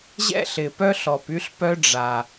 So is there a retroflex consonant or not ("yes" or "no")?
yes